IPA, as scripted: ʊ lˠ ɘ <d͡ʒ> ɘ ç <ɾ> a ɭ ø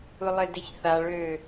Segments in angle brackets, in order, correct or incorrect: incorrect: d, incorrect: θ

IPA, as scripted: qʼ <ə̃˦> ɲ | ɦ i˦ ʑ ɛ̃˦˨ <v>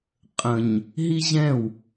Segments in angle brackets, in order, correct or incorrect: incorrect: ə̃˨, incorrect: w

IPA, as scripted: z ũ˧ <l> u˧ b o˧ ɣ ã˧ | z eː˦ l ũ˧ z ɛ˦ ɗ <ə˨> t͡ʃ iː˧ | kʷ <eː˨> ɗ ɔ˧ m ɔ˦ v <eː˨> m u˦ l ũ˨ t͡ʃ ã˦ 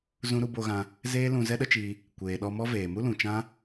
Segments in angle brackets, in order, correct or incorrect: incorrect: ɾ, incorrect: ə˦, correct, correct

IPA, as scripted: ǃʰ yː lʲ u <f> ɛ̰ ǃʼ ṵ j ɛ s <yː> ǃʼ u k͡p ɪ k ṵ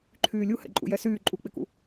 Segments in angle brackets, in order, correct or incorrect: incorrect: h, correct

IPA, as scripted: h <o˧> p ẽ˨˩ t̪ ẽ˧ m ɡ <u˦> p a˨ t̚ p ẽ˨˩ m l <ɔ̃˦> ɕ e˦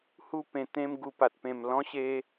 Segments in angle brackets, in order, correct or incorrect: incorrect: u˧, incorrect: u˨˩, correct

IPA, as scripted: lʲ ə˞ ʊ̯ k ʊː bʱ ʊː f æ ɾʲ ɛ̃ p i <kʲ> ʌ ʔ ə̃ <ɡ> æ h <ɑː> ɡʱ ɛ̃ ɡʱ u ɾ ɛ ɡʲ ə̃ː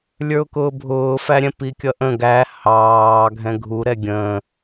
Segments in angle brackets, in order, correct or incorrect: correct, correct, correct

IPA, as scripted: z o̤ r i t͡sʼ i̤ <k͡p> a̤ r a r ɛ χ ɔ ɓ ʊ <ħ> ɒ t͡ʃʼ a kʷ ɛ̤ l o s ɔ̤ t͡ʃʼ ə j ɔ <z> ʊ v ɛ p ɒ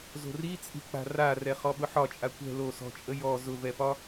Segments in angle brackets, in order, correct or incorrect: correct, correct, correct

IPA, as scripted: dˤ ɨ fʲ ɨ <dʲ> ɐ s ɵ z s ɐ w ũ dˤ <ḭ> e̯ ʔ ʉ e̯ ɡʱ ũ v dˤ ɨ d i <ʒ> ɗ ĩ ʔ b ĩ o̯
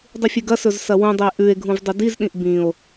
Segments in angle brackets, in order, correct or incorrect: incorrect: ɡ, incorrect: i, incorrect: z

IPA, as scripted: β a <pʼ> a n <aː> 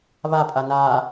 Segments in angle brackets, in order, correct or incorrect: correct, correct

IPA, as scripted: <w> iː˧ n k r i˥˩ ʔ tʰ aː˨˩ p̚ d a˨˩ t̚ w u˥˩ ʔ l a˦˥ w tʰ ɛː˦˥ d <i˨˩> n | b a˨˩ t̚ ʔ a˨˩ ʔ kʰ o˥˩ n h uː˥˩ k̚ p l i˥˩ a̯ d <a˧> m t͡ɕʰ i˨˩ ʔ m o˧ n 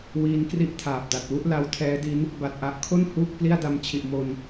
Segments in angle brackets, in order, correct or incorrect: correct, incorrect: i˦˥, correct

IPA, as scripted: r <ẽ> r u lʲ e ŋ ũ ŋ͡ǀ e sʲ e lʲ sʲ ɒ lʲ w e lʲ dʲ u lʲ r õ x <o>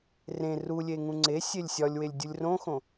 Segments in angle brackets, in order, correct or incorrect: correct, incorrect: õ

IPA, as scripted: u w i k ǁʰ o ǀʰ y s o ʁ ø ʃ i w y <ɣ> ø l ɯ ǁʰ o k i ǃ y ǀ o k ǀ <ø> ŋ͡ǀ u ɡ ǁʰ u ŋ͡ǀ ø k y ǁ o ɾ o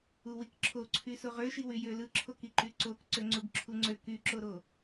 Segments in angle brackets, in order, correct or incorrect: incorrect: j, correct

